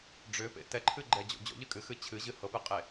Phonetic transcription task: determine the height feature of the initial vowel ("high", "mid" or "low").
high